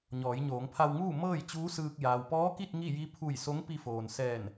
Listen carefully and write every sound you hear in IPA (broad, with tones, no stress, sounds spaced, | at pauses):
ɲ ɔː˩˧ j ɲ oː˩˧ ŋ pʰ a˧ w ŋ uː˥˨ m ɤː˥˨ j t͡ɕ uː˧˥ s ɯː˧ k̚ j aː˩ w p ɔː˧˥ k i˥˨ t̚ ŋ i˥˨ j i˧˥ pʰ u˧˩ j s o˧˥ ŋ p i˧ f oː˩ n s ɛː˧˩ n